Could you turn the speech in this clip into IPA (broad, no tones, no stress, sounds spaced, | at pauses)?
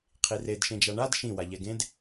qʰ i r e d ʃ ẽ d͡ʒ a ɳ a d ʃ ĩ w a ʎ ɛ ɡ ẽ d